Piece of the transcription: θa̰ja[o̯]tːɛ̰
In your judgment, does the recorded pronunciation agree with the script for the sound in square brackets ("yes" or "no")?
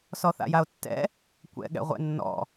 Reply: yes